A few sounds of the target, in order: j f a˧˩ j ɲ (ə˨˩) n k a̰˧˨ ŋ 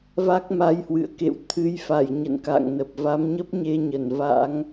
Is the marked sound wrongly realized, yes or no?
yes